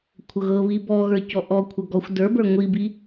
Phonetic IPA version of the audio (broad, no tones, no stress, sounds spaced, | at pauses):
kʷʰ ɤ ɣ ɤ β i b ɔ ɣ ə˞ c ɔ ʔ ɔ kʷʰ ɤ ɡ ɔ xʷ d ə˞ b ə˞ ŋʷ i b i